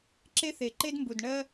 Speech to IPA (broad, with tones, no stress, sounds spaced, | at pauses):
ǁ e˦ θ e˨ ǃ e˦ d m b u˨ d ɳ ɜ˦